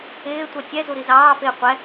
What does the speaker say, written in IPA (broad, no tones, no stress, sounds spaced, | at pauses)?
ɪː tʷ ɛ tʲ ɛ z u ɾ i z ɑː f ɪː qʷ ɛ